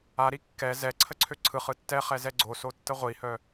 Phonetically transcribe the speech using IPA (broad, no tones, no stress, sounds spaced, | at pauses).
a ɾ i kː ɛ z ɛ ǀʰ ə ǀʰ ø ǀʰ ɯ χ ɯ tː ɛ χ ɛ z ɛ ɡ͡ǀ o s o tː ə ʁʷ i h œ